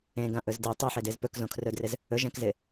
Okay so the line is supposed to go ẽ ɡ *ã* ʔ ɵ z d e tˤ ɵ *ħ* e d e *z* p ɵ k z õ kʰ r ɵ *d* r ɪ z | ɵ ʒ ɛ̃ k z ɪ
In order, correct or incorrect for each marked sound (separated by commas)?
correct, correct, correct, correct